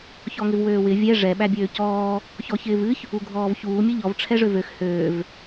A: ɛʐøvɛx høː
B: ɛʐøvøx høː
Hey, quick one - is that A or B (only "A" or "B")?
B